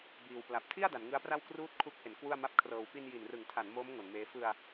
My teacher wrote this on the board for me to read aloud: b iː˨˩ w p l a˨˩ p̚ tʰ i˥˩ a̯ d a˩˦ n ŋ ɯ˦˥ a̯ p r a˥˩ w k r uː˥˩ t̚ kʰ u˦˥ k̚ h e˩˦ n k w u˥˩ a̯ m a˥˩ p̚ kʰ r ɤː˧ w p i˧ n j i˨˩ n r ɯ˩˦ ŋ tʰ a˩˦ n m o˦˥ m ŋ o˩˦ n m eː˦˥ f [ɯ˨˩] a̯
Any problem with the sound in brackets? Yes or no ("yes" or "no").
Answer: yes